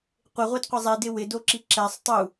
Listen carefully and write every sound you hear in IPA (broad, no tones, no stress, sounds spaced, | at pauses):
qʷ ɪ ʁʷ e d qʷ ɪ zˤ i d ɪ w ɪ d o ǁ i ǁ ɛ sˤ tˤ u